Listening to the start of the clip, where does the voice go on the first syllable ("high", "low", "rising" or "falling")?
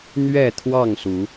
falling